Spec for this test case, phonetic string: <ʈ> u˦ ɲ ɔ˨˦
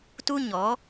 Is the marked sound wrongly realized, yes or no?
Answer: yes